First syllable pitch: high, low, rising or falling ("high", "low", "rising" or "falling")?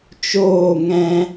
falling